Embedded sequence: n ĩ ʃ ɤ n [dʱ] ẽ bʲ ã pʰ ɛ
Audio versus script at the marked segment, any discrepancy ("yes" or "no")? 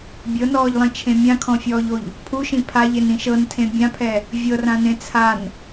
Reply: yes